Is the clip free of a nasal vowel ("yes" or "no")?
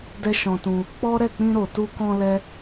no